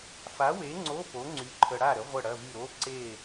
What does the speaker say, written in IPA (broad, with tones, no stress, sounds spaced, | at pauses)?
f a˨˥ w e˨˥ ŋ͡ǀ o˧˥˧ p o˨˥ ŋ͡ǀ y˨˥ ǃʰ ə˧ ɽ a˥˨ ɾ ə˨˥ ʁʷ ə˥˨ ɽ ɐ˧˥˧ v y˥˨ ɾ o˧˥˧ ǀ e˥˨